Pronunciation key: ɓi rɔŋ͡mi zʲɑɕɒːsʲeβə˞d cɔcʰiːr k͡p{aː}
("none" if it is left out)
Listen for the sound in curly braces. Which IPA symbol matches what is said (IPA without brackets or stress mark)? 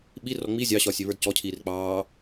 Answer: ɑː